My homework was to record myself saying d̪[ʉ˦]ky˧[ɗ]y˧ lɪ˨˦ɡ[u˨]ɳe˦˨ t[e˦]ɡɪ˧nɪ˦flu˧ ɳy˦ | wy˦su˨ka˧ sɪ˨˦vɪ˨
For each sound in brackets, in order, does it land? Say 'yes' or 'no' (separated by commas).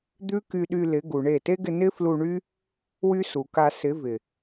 yes, yes, yes, yes